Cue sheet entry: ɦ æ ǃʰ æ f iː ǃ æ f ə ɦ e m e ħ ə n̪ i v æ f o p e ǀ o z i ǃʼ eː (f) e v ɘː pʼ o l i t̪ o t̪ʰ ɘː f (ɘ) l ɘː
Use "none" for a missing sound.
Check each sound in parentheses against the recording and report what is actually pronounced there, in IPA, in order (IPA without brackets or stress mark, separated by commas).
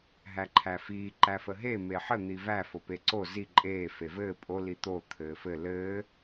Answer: f, ɘ